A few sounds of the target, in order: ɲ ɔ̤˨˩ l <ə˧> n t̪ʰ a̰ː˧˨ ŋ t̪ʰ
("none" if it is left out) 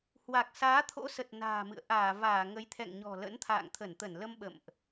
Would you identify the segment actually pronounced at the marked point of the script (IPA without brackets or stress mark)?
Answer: ə̰˧˥